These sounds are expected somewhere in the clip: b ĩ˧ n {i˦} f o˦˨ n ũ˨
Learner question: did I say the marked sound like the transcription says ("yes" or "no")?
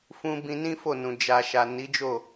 no